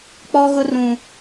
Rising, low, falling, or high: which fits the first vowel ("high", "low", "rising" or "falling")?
high